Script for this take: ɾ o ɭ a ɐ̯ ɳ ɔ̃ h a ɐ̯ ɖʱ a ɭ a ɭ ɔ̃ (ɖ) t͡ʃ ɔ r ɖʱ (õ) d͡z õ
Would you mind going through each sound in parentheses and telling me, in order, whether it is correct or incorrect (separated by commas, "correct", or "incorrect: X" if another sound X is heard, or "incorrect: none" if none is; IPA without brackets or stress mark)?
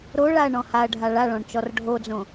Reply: incorrect: ɳ, incorrect: o